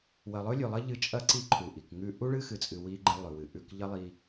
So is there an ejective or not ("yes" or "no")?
yes